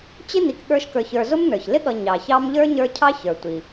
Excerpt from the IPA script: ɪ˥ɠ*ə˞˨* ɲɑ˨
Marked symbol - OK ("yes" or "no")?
no